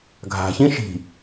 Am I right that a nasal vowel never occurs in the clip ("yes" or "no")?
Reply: no